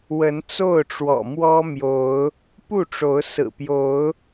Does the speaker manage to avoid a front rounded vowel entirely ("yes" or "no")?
yes